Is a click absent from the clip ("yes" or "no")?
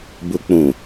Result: yes